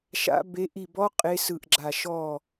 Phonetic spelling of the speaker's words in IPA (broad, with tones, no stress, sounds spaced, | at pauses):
ʃ a̰˦˥ b e˦˥ ʔ i˦˨ b ɔ˦˥ qʼ e˦˥ s ɯ˦˨ ʔ ɡ͡ǁ a˦˨ ʃ ɔ˦˨